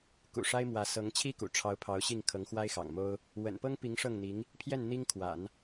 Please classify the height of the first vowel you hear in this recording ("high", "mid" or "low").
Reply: high